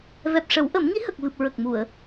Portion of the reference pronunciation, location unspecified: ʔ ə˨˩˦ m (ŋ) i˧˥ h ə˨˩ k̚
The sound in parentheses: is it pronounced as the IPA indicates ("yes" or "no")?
yes